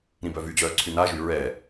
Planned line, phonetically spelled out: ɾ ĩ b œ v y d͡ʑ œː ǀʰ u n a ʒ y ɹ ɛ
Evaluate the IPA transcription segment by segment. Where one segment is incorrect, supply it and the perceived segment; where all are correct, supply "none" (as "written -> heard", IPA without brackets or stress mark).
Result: u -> y